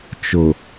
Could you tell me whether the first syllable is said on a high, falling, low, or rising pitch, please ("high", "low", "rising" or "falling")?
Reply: low